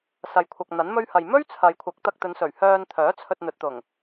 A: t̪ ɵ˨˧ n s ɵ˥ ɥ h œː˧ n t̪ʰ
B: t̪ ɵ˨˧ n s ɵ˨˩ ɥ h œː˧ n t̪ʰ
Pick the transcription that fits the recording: B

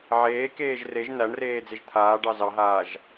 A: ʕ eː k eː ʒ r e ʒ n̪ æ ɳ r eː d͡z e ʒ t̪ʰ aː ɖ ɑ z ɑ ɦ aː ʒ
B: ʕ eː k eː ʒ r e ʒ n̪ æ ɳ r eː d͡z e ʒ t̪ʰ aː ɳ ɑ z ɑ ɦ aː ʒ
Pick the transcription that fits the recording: A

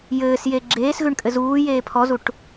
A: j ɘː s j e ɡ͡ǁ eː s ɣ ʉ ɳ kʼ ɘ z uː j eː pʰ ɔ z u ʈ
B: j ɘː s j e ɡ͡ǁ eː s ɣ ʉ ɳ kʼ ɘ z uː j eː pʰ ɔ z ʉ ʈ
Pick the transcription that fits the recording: A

